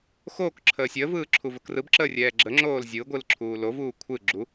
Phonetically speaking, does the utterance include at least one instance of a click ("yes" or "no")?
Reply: yes